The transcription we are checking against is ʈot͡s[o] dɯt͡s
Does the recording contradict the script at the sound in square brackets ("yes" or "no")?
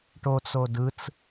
no